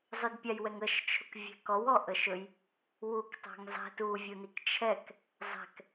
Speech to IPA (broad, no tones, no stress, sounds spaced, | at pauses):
zˤ ʊ d pʲ a j w ɛ ŋ ə ʃ t͡ʃʰ ʊ k vʲ ɛ̤ k ɔ w ɔ ʔ ə ʃ ɵ j | w u k tˤ a̤ ŋ zˤ ɛ̤ t u vʲ u n i k t͡ʃʰ ɛ k | zˤ ɛ̤ k